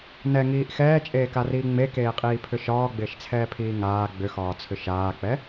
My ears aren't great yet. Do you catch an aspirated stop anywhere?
yes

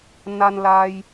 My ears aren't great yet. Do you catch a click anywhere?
no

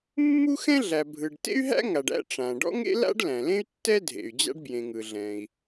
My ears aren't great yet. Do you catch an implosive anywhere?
no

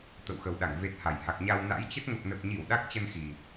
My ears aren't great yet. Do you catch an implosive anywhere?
yes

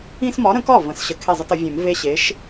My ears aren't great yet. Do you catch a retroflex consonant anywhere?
no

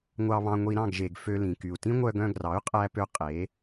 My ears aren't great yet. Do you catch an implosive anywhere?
no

